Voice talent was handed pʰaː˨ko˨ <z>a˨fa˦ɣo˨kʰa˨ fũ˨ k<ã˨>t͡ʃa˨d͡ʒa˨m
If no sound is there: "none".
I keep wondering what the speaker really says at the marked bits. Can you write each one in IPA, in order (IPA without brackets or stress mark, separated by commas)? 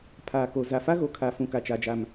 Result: z, a˨